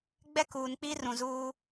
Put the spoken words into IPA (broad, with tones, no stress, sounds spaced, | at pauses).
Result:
ɡ͡b ɛ˦ k uː˨ n k͡p i˦ r ũ˨ z uː˦